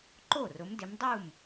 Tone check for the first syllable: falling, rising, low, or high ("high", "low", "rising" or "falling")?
falling